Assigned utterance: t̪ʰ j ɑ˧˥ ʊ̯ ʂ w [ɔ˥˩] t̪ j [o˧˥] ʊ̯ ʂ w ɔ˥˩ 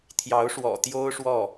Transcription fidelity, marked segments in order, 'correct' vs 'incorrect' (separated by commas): incorrect, incorrect